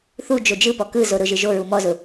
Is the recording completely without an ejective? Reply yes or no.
yes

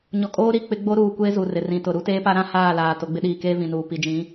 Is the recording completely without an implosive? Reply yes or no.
no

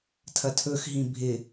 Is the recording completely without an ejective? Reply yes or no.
yes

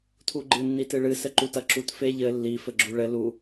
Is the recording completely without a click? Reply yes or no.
no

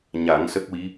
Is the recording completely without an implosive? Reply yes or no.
yes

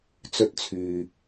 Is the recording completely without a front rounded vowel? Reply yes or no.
no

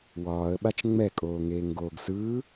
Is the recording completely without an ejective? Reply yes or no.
no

